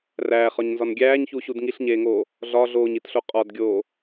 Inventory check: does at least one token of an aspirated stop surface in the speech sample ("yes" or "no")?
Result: no